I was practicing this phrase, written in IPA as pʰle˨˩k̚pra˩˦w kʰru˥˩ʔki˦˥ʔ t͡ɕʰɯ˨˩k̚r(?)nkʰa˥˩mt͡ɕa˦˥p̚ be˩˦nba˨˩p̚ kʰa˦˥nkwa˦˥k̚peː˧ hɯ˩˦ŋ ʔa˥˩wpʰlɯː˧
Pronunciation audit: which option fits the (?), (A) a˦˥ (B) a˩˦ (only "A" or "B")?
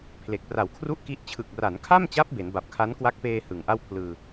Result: B